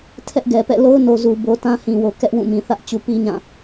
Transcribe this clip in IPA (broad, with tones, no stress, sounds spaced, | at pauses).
tʰ ɛ˦ ʔ ɡ ɛ˨ p ɛ̰˦˨ l o˦ ʊ̯ n o˨ z u˨ b o˨ t ã˦ h ĩ˨ w o˨ k ɛ˦ ʔ w ũ˦˨ m ĩ˨ θ ä˦ ʔ t͡ɕ u˨ p i˦ ɲ ã˦˨